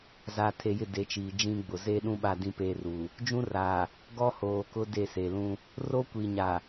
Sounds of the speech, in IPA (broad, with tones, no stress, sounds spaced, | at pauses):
z aː˨ tʰ e˨ j ɪ˦˨ d e˨˦ t͡ʃ iː˨ d͡ʒ ĩ˦ ɡ͡b ʊ˨ z eː˦ ɗ ũ˦ ɓ a˦˨ d ĩ˦ p eː˦ r uː˨ | d͡ʒ ũ˦ r aː˨ | ɡ ɔ˦ h oː˨ k ʊ˦ d e˦˨ s e˨ l ũ˦ | r o˦ kʷ iː˨ ɲ a˨